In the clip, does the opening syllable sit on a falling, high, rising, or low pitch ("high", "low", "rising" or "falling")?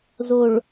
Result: low